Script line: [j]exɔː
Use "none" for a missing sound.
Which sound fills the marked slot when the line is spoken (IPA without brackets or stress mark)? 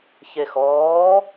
ç